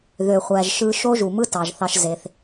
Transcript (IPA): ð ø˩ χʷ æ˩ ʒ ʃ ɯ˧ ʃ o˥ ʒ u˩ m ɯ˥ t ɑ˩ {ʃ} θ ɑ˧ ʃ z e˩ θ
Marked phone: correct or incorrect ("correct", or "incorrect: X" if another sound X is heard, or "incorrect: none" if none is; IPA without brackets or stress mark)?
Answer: incorrect: ʒ